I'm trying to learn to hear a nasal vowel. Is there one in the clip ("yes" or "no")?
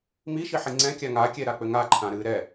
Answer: yes